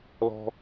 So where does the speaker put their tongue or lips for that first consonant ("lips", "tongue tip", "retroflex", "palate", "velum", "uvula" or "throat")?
tongue tip